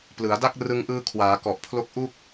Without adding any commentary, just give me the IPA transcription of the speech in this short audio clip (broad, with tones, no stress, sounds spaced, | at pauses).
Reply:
p l ɯ˩˦ a̯ d a˥˩ k̚ r ɯ˧ ŋ ʔ ɯː˧ kʰ w aː˩˦ k ɔ˨˩ ʔ pʰ l o˦˥ k̚ ʔ u˥˩ k̚